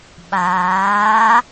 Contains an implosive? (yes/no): yes